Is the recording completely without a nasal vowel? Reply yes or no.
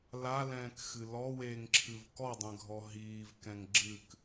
no